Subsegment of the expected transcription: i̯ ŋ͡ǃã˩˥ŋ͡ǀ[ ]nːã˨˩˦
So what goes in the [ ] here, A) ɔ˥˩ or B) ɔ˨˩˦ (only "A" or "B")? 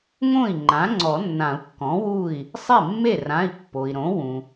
B